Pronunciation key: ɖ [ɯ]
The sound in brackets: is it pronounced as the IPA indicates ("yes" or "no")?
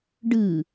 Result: yes